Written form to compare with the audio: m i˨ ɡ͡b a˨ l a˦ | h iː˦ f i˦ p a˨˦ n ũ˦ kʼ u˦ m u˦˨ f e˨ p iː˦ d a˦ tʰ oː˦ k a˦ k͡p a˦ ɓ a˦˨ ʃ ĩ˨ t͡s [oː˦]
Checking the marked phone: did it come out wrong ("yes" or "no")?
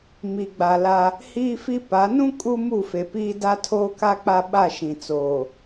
yes